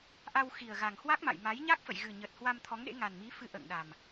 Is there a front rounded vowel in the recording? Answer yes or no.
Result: no